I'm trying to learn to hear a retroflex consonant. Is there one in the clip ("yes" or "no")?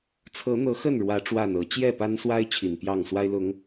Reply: yes